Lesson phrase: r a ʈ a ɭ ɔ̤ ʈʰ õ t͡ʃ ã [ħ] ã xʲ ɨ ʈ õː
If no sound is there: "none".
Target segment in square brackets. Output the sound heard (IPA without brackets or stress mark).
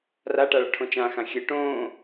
x